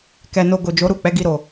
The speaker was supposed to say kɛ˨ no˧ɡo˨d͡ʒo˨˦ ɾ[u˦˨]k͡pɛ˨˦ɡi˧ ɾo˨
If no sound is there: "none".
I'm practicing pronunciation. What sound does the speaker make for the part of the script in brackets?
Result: u˦˨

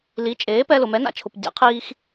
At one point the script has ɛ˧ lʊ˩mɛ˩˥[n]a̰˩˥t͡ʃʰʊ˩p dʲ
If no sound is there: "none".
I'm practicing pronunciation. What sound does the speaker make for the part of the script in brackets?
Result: n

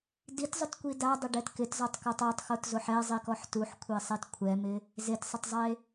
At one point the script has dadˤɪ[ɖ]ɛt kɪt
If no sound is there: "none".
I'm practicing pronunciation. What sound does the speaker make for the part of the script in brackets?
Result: ɖ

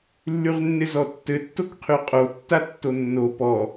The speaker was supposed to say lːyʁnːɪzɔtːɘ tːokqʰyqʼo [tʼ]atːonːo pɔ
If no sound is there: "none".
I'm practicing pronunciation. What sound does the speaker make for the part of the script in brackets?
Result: tː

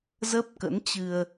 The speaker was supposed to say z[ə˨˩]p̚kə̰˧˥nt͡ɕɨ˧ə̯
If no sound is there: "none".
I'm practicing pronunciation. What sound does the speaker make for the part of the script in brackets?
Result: ə˦˥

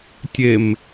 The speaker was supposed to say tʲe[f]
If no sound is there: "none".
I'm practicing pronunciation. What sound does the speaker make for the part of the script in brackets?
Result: m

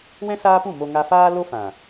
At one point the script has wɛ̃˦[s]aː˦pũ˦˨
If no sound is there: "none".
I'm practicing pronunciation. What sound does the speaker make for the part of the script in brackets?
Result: s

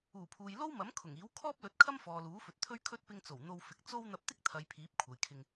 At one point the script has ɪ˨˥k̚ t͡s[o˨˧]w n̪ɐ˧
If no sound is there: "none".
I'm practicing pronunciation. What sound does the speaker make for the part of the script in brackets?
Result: o˥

